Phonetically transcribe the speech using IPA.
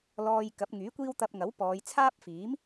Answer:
l ɔː˧ j k ɐ˨˥ p̚ ŋ yː˨˥ kʷ iː˥ w t̪ ɐ˧ p̚ ŋ ɐ˨˥ w p ɔː˨˧ j t͡sʰ aː˥ p̚ f iː˨˥ m

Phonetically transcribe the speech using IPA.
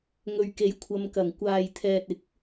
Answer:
ŋ ɵ˨ ɥ k e˨˥ j kʷʰ ɐ˧ m k ɐ˨˩ ŋ kʷ aː˨ j t̪ʰ ɛː˨ t̚ ɪ˨˥ k̚

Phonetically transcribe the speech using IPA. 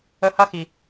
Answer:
ə˧ h ɐ˦ x i˨

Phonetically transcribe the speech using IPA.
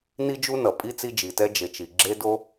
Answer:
n i˥ d͡ʒ u˥ n ʌ˩ pʼ i˥ t͡s i˥ d͡ʒ i˩ t ɛ˥ d͡ʒ e˩ t͡ʃ i˩ ɡ͡ǁ e˥ d o˥

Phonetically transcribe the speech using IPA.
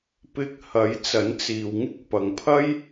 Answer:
p ɪ˧ k̚ h ɐ˨˥ j t͡s ɐ˨˥ n t͡s iː˨ w ŋ ɪ˥ k̚ p ɐ˨ ŋ pʰ ɐ˥ j

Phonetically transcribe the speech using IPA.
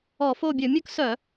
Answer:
ɔ˧˩˧ f o˦˨ bʲ ɵ˧˩˧ mʲ ɵ˥ k s œ˧˩˧

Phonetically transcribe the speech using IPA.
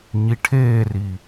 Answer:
ɲ i ʈʰ eː r i

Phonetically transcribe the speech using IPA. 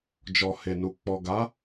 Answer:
d͡ʒ ɔ˨ h e˨ n u˨ k͡p ɔ˨ ɡ a˨˦

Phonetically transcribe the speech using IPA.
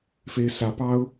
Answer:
f e˥ ɪ̯ s ä˧˥ p ɑ˥ ʊ̯

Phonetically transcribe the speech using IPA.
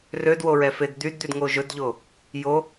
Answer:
r ø d w o ɹ ɛ f e d d̪ y d d̪ y d ŋ o ʒ ɵ d ʎ o | j o

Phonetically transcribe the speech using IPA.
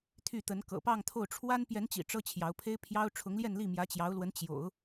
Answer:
t̪ʰ y˥˩ t̪ ə˧˥ n k ɤ̰˨˩ p ɑ˥˧ ŋ t̪ʰ o˥˩ ʊ̯ ʈ͡ʂʰ w a˥ n p j ɛ˧˥ n t͡ɕ ḭ˨˩ ʈ͡ʂ ɤ˥ t͡ɕʰ j ɑ˧˥ ʊ̯ pʰ e˥ ɪ̯ pʰ j ɑ˥ ʊ̯ ʈ͡ʂʰ ʊ˧˥ ŋ l j ɛ˥˧ n l i˥˩ m j ä˧˥ t͡ɕ j ɑ˧˥ ʊ̯ l w ə˧˥ n t͡ɕ j o̰˨˩˦ ʊ̯

